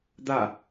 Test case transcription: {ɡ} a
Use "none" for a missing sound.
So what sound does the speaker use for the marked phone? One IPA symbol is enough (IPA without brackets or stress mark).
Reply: d̪